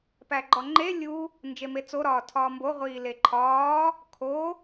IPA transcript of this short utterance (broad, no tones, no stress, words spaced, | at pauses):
pæɡ͡ǃɒŋ͡ǃe lʲu | nd͡ʒemet͡so ɾɒːtʰɒːmbo ʁʷiːleǃʰɒː | kʰo